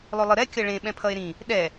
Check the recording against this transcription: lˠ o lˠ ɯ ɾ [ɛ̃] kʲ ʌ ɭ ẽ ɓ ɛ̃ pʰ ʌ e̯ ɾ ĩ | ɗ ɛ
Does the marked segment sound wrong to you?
yes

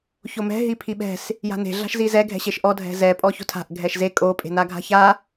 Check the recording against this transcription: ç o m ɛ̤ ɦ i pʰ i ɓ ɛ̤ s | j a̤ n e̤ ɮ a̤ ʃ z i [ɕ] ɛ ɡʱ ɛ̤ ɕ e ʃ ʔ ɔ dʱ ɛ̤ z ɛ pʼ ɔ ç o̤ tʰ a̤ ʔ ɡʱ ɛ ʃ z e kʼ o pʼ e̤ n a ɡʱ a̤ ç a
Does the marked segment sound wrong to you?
yes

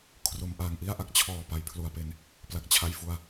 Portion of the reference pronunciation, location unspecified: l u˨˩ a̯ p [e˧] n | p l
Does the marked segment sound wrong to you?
no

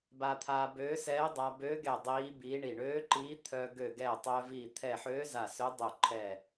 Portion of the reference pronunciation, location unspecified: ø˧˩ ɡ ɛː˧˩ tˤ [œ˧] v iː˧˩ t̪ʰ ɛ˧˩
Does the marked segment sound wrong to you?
no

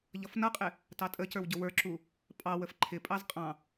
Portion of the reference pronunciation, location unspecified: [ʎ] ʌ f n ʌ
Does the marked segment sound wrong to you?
no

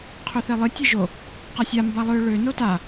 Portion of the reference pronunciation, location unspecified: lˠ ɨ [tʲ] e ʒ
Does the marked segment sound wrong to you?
no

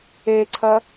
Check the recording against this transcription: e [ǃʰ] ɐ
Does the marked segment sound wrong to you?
yes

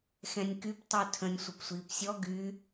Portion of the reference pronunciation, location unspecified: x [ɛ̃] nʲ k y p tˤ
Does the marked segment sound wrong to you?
no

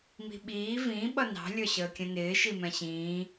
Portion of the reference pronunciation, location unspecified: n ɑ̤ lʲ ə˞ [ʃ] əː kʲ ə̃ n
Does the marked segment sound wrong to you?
yes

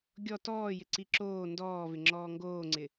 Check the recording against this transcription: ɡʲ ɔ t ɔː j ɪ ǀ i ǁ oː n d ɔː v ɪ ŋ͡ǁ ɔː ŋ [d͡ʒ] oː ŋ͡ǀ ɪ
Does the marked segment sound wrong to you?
yes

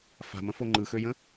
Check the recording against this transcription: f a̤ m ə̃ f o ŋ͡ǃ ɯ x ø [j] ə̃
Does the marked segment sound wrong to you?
no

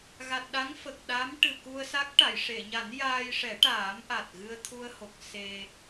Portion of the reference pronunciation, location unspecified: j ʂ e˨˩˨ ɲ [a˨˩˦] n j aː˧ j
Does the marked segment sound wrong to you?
no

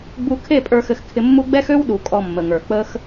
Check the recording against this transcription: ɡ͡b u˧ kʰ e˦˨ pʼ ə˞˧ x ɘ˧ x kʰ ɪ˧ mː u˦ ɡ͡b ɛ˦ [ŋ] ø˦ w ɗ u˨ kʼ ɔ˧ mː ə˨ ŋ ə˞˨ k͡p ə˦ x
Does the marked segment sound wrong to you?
yes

